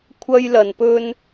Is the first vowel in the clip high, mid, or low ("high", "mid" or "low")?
low